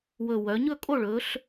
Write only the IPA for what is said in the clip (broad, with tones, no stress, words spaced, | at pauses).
wɵ˨˩wœ˩˧ɲɵ˥˨kʼo˥˨ ɭɵ˩˧ɬ